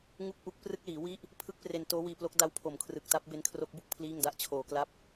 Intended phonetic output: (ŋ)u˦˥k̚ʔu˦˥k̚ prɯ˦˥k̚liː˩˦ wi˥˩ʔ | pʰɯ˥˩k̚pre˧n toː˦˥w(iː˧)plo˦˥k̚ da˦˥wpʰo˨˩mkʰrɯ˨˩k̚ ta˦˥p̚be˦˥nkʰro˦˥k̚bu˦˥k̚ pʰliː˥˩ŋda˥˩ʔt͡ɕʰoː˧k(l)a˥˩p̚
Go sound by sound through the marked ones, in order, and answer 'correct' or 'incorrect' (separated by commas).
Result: correct, correct, correct